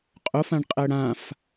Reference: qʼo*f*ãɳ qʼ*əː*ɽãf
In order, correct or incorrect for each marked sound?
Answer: correct, correct

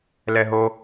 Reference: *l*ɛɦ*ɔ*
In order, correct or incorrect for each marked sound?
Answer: correct, incorrect: o

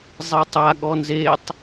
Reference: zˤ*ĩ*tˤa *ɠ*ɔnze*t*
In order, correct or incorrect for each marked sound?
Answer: incorrect: i, correct, incorrect: tˤ

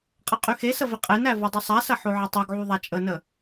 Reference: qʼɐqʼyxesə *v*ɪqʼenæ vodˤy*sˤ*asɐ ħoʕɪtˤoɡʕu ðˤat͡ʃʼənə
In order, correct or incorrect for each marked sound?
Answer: correct, correct

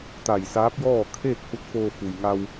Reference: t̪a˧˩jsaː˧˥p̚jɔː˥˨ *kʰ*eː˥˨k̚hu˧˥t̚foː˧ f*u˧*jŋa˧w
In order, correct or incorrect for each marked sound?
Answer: correct, incorrect: u˩

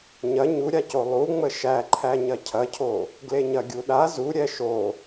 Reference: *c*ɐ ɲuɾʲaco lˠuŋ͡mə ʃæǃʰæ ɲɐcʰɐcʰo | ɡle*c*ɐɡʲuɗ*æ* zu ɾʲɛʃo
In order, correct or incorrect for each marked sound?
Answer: incorrect: ɲ, incorrect: ɲ, incorrect: a

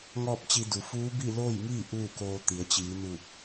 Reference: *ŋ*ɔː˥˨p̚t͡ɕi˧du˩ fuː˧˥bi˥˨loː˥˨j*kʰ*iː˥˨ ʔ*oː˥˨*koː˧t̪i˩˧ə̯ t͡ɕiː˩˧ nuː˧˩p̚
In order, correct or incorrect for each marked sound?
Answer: correct, incorrect: ŋ, incorrect: uː˥˨

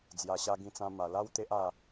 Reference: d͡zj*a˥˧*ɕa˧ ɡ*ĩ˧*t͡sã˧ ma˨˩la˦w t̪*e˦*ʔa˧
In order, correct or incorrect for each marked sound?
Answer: incorrect: a˨˩, correct, correct

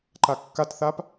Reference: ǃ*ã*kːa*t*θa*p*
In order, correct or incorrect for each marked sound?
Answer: incorrect: a, correct, correct

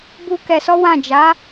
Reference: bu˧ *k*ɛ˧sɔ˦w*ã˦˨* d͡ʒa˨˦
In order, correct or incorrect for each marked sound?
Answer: correct, correct

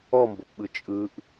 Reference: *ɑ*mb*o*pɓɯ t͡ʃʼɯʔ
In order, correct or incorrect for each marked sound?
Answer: incorrect: ɔ, correct

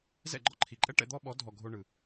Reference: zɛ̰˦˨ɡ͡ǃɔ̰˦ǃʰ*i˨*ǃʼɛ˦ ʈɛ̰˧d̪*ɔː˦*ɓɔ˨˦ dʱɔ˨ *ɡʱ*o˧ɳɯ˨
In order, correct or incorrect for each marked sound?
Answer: correct, incorrect: ɔ˦, correct

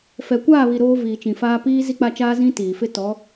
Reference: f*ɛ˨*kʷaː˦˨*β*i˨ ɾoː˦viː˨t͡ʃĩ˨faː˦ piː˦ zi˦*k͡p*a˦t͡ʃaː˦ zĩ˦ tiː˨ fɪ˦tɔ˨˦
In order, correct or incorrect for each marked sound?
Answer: correct, correct, correct

